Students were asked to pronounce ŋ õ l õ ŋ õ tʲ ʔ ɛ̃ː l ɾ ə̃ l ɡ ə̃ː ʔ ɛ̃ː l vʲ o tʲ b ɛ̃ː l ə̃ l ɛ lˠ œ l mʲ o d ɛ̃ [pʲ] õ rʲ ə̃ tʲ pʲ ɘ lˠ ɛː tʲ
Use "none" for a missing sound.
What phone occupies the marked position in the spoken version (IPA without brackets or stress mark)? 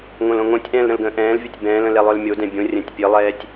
bʲ